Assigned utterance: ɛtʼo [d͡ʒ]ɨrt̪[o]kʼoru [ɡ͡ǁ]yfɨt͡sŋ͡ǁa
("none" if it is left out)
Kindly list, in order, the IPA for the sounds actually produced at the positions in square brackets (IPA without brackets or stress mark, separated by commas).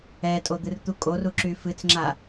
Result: d̪, u, ǁ